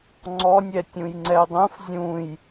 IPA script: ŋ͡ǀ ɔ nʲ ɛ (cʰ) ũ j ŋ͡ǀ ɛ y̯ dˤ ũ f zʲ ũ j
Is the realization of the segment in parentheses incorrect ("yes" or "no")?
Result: yes